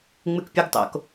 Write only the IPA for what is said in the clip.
ŋ͡mɨkpʲuɡtˤo̰k

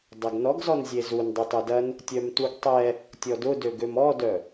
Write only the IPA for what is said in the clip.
dˤɐɡnɔɡzɔn zʲezun dˤytˤœdɐn | tʲœmtuɡtˤɛ | tʲɔdʊdø ɡømɔdœ

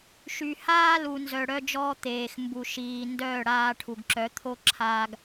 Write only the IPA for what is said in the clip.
ʃy˨haː˦lu˨ nzœ˨ɽœ˧d͡ʒɔː˧ t̪eː˨x mbu˨ ʃiː˨ ndœː˦˨ɽaː˧ʈʰu˨ɡǁœ˨˦ t̪ʰo˦ǁʰaː˧ɡ

